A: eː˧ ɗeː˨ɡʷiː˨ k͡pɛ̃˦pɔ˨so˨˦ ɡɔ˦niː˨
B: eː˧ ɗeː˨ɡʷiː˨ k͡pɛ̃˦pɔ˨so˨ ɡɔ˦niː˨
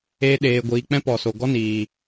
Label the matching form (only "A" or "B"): B